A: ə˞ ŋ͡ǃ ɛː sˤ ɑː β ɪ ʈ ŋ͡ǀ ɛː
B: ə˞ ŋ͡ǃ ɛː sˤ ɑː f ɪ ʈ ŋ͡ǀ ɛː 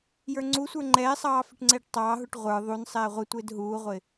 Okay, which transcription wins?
B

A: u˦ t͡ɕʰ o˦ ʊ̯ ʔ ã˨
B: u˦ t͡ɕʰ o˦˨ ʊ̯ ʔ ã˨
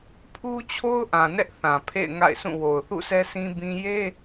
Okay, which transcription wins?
A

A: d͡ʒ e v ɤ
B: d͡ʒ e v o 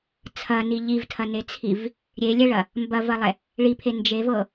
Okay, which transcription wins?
A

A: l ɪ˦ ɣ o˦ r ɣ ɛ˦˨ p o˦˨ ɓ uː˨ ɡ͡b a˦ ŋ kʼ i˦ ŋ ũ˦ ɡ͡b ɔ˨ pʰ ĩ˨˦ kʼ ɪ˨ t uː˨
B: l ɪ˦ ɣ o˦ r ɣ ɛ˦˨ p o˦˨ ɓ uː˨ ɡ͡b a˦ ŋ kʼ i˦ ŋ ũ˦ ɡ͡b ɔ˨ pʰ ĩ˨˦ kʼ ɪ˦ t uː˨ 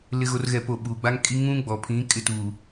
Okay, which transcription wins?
B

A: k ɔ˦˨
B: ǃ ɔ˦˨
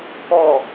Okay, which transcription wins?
A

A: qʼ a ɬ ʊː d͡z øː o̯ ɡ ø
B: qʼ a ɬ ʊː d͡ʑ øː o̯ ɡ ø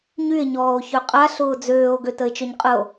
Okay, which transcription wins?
A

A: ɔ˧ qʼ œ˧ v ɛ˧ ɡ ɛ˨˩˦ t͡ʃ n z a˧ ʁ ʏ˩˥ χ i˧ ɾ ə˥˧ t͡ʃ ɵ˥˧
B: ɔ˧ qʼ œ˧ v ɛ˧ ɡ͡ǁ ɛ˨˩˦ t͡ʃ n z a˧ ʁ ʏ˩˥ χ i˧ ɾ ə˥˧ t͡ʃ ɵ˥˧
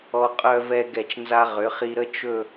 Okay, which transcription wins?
A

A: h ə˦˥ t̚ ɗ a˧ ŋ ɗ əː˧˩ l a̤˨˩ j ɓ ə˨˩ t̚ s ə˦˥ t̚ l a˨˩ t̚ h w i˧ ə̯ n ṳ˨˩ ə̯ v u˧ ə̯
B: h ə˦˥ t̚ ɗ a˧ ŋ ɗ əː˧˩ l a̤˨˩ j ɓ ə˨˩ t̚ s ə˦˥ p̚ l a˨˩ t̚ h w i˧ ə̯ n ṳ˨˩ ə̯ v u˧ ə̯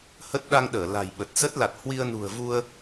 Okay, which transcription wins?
A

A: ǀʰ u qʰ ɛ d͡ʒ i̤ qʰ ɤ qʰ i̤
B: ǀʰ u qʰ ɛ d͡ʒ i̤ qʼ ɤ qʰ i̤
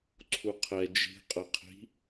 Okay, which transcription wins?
B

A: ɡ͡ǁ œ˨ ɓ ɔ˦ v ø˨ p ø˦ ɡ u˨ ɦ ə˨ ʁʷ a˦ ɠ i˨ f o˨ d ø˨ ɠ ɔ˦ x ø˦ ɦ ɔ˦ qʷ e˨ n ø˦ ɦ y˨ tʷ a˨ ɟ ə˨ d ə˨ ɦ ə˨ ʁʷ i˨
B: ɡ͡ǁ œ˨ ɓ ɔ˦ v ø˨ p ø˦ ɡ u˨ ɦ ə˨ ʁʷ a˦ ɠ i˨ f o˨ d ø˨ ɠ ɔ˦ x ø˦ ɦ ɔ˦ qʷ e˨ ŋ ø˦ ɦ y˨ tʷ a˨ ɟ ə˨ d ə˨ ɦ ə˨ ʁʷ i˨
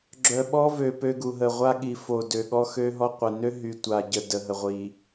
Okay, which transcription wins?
A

